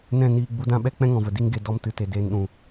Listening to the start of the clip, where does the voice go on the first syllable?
falling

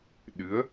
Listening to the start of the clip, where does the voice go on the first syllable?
rising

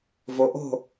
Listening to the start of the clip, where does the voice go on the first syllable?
rising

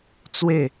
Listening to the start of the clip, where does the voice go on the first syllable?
falling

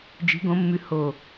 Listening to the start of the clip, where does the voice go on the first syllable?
rising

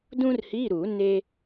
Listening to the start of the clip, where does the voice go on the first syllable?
high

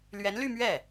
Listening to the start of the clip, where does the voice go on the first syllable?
rising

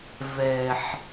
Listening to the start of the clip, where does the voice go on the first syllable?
low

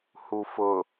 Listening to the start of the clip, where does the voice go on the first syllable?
low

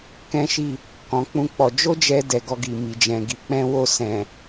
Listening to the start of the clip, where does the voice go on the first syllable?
high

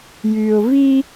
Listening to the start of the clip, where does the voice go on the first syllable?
low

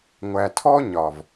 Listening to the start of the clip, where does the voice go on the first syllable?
low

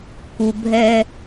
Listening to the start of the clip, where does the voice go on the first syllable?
low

